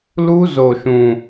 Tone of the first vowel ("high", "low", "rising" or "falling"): high